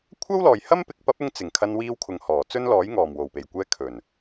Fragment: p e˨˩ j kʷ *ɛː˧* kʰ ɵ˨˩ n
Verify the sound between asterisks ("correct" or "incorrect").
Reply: correct